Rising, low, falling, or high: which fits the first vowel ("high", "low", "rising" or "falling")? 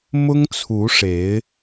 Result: high